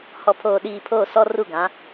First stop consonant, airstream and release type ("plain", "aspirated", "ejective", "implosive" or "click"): aspirated